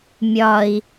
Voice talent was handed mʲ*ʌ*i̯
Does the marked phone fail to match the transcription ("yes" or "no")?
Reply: yes